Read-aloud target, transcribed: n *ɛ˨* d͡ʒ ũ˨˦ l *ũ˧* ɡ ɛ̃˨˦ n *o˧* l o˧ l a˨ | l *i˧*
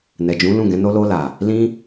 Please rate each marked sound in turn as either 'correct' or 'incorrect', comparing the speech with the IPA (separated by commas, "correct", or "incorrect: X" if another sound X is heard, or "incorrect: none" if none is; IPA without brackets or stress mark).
correct, incorrect: ũ˦˨, incorrect: o˦, incorrect: ĩ˧